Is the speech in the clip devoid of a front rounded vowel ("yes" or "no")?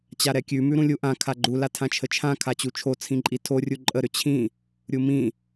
no